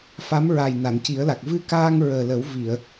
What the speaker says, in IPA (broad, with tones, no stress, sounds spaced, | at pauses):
f a˧˥ m ɹ a˨˩ j n a˨˩˨ n c i˨˩˦ ə̯ l a˨˩ k̚ v ɨ˧ k aː˧ ŋ ɹ əː˨˩ l ə˨˩˦ w v i˨˩˨ ə̯